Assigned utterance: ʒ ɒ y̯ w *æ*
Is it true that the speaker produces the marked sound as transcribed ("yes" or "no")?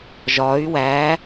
yes